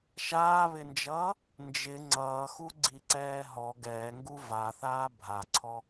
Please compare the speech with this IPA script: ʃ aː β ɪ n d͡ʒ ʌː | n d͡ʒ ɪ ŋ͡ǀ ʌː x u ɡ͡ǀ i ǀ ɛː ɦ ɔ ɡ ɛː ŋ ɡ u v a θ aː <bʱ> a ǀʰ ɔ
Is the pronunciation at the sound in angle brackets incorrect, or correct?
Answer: correct